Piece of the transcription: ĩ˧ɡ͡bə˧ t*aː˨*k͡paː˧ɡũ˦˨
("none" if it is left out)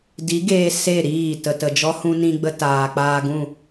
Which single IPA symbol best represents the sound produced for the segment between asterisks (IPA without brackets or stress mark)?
aː˨